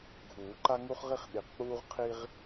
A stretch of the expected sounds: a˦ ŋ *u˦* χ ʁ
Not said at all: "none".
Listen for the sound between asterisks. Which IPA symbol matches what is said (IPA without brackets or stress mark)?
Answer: u˦